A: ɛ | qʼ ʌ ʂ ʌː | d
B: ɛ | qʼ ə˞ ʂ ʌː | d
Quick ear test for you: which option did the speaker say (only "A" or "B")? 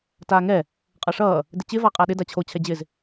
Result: A